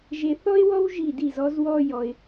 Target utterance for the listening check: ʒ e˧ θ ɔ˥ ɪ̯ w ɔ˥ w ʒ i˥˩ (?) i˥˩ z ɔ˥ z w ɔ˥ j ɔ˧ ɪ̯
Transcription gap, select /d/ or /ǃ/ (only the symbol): d